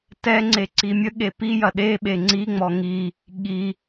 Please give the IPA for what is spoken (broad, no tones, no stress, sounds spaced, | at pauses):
t ɛ ŋ͡ǀ e ǀ i mʲ ə ɠ e p i j ɐ ɗ e ɓ e ŋ͡ǀ i ŋ͡m ɔ ŋ i | ɠ i